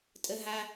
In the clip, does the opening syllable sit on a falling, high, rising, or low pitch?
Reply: high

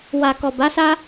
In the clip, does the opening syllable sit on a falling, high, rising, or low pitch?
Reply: low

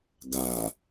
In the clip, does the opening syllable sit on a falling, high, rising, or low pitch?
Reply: low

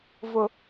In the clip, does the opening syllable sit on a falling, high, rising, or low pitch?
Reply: low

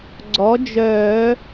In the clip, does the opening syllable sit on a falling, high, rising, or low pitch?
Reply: rising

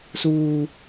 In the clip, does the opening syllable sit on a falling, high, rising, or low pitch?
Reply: high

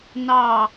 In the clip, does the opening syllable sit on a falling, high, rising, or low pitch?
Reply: falling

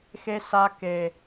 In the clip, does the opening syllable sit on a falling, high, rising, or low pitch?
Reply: high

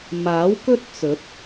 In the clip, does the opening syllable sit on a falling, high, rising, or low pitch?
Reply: rising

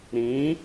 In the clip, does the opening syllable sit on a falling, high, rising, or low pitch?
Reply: rising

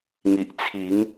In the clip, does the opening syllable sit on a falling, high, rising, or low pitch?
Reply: low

